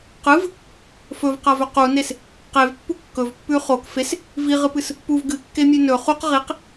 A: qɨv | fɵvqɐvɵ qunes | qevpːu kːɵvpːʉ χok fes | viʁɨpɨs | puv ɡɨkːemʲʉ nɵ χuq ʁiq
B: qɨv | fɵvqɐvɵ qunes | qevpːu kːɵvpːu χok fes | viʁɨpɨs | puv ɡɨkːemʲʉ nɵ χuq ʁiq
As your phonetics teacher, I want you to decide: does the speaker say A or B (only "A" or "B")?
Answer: A